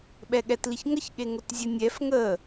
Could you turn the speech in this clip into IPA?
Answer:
ɓ ɛ ɠ ɛ t l i ç ŋ ə ç ɠ e ŋ ʊ t zʲ ə nʲ ɛ f ŋ ə

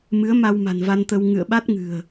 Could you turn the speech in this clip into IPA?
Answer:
m ɨ˨˦ ə̯ m a˧ w m a̤˨˩ n v a˧ n t̪ ə˧ w ŋ ɨ̰˧˨ ə̯ ɓ a˦˥ t̚ ŋ ɨ̤˨˩ ə̯

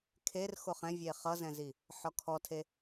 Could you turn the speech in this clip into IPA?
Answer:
kʰ e r x o χ ɛ̃ vʲ e χ ʌ z ɛ̃ z i | ħ ɔ kʰ ɔ tʰ e

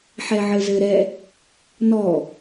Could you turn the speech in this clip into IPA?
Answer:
ħ ɛ ʕ ɘ z ɘ ɾ ɛ | n ɔ

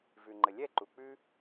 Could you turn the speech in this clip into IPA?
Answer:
v ʉ˨ ŋ͡ǃ ə˨ lʲ ɛ˦˨ ǃ u˨ k͡p ʉ˦

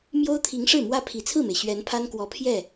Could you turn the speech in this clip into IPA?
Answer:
m j o˥ ʊ̯ t̪ʰ i˧˥ ŋ ʂ ɻ̩˥˩ m w ä˥ pʰ i˨˩ t͡sʰ ɹ̩˥˩ m e˩ ɪ̯ ɕ ɥ ɛ˧˥ n pʰ a˥ n k w ɔ˧˥ pʰ j ɛ˥˩

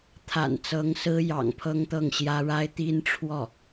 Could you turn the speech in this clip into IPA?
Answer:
t̪ʰ a̰˨˩ n t͡s ɤ˧˥ ŋ s ɹ̩˥ j ɑ̰˨˩ ŋ pʰ ɤ˥ ŋ t̪ ɤ˥˩ ŋ ɕ j ä˥ ɻ a˥ ɪ̯ t̪ i˥ n ʈ͡ʂʰ w ɔ˥˩

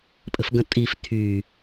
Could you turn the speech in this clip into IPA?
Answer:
pʼ ə̤ f ɡ ə̃ tʼ i f tʰ y

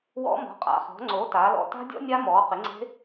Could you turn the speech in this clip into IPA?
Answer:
w ɔ̰˦˥ m ɔ̤˩˥ qʼ a̰˩˥ χ ɔ̤˩˥ ŋ͡ǀ o˩˥ t aː˩˥ l ɔ̰˦˥ t a̤˦˥ dʲ ɔ̰˦˥ nʲ a˦˥ m ɔː˩˥ q ɪ˩˥ ŋ͡ǀ e̤˦˥

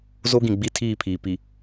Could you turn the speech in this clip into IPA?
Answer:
z o˦ ɡ ĩ˨ ɡ͡b i˦ tʰ iː˦˨ pʰ iː˨ p i˨

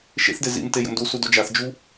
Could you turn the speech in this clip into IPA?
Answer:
ʃ ḛ θ d e z ḭ m t e j ə̰ m d u s u d o d͡ʒ a θ d͡ʒ u

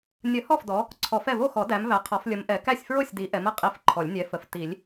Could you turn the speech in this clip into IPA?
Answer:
nʲ ə˨˩˦ h ɔ˥˩ f d ɔ˨˦ | ǀʰ ɔ˨˩˦ f ɛ˥˩ v o˥˩ x ɔ˨˩˦ d æ˨˦ m v æ˨˦ qʰ ɔ˨˦ f lʲ ə˨˦ m ʔ ɛ˨˩˦ k æ˥˩ sʲ f ɹ o˥˩ sʲ d i˨˦ ʔ ɛ˨˦ m ə˨˩˦ qʼ i˨˦ f ǃʰ ɔ˨˩˦ lʲ nʲ ɛ˨˦ f ə˨˩˦ f t i˨˩˦ lʲ

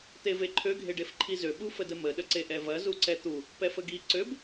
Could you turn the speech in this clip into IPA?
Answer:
t̪ e v e ǃʰ ø ɡʱ e ɖ e f ǃʰ i z ø ɓ u f ə d ə m ə ɗ ə ǀ e ʔ ɛ v ɐ z u ǀ ɛ t̪ u | p ɛ f ə ɡ i ǀ ø b

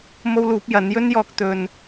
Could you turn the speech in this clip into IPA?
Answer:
m o˥ w l uː˨˥ p̚ j ɐ˨˥ n j ɵ˥ n j ɔː˧ k̚ t̪ ɵ˧ n

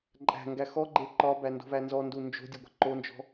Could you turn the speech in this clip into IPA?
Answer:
ǃʼ æ̤ ŋ ɡ æ x ɔ ɡ͡ǃ e ǃ ɒ b æ n d o̤ v æ n z ɔ n d u n d͡ʒ o̤ dʲ o ɡʷ ɛ̤ ǃ o n d͡ʒ ɔ̤

